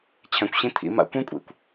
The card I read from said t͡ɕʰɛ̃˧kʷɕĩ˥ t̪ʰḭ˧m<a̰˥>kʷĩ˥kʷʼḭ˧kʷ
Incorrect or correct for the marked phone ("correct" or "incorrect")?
correct